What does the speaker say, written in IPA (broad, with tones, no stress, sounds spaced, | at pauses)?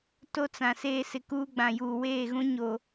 t o˦ t͡s ã˨ s eː˦˨ s ɪ˨ k uː˦ ɡ͡b ã˨ j uː˨ w eː˦˨ ɣ ũ˦ ɲ o˨